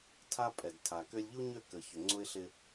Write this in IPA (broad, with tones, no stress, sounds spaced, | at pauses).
tʰ a˦ pʼ ɛ˨ d tʰ a˨ k ø˦ lʲ ʎ u˦ ɲ ø˦˨ k ə˨ ç ʏ˨ ŋ͡ǀ ʊ˦ ɪ̯ ɬ ɪ˦